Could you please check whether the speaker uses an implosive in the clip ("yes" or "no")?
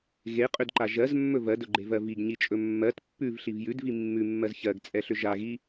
no